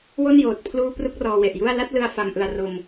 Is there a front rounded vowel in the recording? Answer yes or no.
no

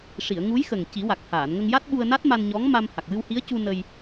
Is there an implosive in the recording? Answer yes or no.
yes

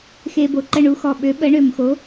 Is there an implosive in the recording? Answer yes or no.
yes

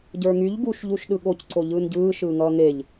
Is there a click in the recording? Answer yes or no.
yes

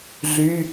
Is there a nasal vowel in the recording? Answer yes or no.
no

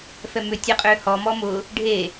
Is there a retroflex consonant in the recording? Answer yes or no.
yes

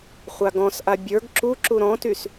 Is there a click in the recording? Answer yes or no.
yes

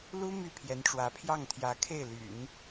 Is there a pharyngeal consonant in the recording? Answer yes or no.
no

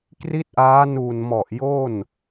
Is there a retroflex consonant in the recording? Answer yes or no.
no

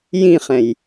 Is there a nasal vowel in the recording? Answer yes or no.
yes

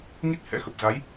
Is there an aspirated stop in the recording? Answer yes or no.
no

